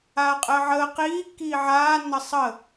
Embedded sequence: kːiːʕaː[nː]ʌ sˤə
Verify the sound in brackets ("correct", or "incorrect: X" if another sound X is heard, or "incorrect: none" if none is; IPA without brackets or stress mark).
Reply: correct